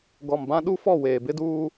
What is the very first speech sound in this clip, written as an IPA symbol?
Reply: ɡ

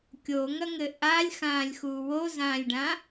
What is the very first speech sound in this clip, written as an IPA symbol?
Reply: kʲ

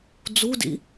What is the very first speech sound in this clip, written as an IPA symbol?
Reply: d͡z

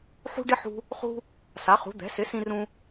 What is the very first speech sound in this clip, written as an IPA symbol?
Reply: ħ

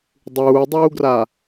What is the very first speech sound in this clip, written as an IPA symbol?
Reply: dˤ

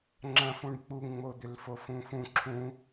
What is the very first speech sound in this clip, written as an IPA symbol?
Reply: ŋ͡ǁ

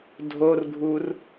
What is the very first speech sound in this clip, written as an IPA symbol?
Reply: dʱ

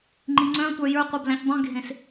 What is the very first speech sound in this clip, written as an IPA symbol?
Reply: ŋ͡ǃ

